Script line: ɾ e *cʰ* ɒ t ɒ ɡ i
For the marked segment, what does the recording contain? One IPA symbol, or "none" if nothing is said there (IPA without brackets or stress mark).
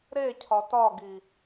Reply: cʰ